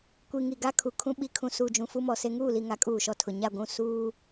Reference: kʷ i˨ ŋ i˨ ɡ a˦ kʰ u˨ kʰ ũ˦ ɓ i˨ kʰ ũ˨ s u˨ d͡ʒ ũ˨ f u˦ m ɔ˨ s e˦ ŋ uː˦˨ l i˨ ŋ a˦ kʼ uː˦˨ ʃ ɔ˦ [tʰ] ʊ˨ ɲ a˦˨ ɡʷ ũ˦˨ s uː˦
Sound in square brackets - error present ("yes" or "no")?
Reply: no